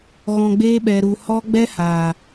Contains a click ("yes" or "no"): no